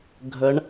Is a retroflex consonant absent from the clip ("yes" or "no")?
no